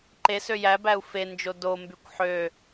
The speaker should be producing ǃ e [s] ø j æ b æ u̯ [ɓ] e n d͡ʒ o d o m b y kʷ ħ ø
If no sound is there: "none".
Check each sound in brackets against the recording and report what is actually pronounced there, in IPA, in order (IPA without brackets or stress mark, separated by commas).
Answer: s, f